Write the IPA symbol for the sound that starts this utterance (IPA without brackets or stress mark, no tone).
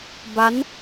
b